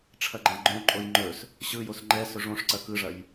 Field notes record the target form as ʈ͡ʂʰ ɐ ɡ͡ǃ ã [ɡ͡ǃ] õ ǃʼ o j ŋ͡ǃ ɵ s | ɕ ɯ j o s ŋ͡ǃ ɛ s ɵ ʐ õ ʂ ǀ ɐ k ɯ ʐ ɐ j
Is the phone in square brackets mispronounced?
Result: no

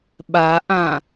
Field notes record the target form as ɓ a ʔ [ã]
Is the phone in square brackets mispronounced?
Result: no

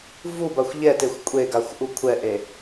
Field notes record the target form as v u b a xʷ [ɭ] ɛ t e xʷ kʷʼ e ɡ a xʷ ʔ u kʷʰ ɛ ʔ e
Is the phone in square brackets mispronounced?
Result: yes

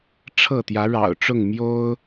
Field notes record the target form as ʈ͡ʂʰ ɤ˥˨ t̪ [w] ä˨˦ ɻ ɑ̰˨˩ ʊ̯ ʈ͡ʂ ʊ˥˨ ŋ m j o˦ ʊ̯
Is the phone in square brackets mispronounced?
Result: yes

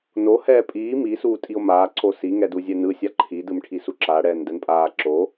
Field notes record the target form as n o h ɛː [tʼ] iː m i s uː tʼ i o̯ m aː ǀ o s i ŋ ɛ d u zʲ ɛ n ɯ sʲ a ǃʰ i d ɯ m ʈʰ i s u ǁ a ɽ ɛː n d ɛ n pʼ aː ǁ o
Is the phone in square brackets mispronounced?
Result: yes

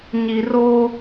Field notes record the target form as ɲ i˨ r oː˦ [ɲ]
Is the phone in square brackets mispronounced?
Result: yes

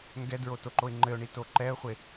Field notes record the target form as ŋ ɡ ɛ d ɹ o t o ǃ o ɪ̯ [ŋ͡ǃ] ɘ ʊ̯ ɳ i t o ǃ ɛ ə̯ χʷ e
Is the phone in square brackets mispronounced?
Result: no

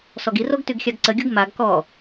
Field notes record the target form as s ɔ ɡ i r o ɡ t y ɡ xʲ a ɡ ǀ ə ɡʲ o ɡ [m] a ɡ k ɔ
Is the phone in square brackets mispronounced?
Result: no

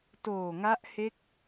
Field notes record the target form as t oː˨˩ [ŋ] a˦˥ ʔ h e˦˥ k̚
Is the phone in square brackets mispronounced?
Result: no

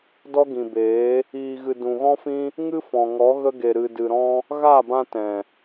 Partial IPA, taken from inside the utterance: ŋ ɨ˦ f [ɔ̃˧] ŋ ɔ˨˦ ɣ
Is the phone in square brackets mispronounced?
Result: yes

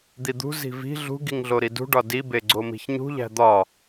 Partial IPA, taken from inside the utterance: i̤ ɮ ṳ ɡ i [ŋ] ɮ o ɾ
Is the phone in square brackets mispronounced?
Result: no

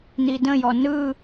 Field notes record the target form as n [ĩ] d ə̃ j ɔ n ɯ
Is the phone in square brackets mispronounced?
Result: yes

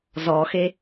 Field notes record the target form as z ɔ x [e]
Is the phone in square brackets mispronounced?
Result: no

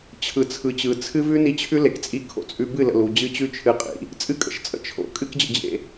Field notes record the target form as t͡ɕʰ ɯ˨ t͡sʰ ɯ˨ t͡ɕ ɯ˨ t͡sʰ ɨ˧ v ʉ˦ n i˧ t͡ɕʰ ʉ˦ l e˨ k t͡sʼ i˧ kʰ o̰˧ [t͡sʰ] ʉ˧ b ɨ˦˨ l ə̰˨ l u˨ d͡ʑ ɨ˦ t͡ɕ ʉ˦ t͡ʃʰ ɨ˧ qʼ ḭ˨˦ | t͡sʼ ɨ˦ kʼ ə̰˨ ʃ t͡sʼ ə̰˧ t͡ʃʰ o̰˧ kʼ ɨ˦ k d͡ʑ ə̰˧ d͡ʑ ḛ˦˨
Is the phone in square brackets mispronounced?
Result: yes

